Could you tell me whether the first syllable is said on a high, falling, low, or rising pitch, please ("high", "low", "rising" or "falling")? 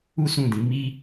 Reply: high